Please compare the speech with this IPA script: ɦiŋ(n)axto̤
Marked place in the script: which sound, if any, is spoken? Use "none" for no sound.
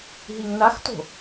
n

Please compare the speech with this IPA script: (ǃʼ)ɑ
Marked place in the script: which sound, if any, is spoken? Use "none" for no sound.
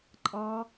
ǃʼ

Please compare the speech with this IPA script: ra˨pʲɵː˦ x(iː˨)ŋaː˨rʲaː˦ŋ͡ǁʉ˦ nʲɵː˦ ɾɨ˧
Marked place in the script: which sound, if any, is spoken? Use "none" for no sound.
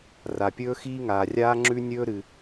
iː˦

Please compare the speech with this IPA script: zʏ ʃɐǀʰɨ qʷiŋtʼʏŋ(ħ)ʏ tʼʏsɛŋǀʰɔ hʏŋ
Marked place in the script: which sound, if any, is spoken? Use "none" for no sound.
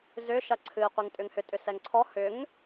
h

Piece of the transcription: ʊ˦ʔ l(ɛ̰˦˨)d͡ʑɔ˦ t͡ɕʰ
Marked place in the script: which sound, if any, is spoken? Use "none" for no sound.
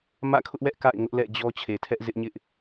ɛ̰˦˨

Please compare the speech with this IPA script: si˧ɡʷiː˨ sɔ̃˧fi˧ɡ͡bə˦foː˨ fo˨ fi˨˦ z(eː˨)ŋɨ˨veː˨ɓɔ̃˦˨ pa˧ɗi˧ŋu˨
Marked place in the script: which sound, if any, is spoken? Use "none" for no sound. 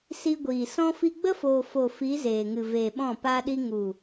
eː˨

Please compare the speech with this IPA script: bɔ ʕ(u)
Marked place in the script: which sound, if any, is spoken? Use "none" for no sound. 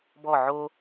o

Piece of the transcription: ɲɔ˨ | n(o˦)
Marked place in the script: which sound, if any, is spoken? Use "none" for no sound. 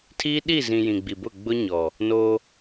o˦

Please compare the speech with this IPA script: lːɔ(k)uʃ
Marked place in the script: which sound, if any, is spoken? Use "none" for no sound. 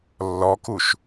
k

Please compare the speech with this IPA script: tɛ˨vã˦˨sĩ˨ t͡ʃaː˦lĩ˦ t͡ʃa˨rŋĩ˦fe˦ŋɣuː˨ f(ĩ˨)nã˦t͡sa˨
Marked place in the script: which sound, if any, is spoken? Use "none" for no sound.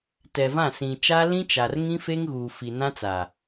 i˨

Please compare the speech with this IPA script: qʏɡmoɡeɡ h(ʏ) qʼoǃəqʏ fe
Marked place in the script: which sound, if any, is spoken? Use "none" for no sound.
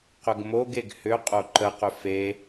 ʏ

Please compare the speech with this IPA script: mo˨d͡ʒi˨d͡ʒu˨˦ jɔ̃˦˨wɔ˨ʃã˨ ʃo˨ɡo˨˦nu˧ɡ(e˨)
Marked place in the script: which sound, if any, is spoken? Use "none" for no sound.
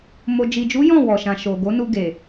e˨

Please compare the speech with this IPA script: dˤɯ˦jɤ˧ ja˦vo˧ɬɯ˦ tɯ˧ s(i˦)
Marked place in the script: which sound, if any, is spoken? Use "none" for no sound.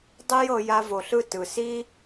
i˦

